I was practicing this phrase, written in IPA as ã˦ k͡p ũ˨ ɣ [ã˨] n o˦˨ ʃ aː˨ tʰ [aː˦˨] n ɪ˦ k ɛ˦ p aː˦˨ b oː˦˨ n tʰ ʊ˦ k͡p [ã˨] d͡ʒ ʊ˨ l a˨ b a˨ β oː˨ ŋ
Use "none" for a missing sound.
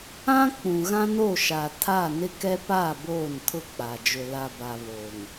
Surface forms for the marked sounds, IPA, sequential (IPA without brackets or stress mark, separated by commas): ã˦, aː˦˨, a˨